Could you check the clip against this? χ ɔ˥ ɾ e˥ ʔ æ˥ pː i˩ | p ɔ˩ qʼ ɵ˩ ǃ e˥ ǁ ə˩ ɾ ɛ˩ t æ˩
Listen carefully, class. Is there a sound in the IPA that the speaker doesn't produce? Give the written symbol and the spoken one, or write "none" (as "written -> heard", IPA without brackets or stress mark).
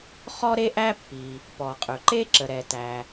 none